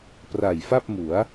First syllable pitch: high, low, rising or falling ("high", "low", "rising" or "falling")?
low